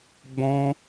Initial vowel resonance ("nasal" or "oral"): nasal